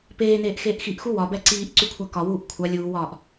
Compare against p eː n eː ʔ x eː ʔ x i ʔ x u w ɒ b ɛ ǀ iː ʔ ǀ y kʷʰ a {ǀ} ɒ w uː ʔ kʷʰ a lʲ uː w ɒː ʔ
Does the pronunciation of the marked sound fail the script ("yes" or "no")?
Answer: yes